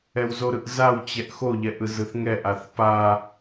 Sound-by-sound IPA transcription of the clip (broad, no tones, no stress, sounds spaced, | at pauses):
ɛ w z o ɾ ɯ ʔ z a w t͡ɕ ɛ ʔ x o ʎ ɛ ʔ ɯ z ɯ θ ŋ ɛ ʔ a θ p a